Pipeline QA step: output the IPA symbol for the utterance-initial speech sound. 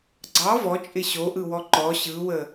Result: ɡ͡ǀ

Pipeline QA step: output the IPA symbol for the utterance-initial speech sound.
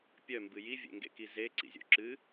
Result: pʲ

